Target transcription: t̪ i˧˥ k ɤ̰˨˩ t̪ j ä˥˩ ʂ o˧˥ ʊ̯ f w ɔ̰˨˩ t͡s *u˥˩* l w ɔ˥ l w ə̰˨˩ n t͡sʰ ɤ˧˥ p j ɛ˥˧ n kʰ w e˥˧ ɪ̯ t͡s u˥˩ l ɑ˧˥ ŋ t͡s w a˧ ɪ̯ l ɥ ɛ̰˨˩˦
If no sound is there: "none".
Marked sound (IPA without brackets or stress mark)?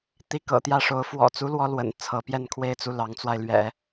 u˥